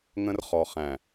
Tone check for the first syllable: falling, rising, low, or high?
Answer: high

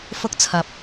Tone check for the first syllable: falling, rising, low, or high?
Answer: high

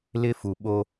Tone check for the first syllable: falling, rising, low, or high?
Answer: high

